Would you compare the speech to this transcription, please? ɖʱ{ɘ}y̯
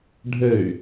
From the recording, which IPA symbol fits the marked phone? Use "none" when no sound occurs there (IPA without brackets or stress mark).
ɘ